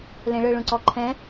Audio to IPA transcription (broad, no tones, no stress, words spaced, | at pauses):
lẽɭɯ ɭũǀɔǃʰɛ̃